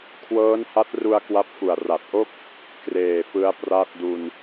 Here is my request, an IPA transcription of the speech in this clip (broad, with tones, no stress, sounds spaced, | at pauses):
kʰ w ɤː˦˥ n h a˦˥ t̚ r u˧ a̯ k w a˦˥ p̚ f u˨˩ a̯ r a˨˩ t̚ ʔ o˥˩ k̚ | k r eː˨˩ f ɯ˦˥ a̯ p r a˥˩ t̚ d u˧ n